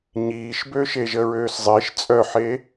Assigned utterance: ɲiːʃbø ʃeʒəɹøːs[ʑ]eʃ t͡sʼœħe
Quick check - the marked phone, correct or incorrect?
incorrect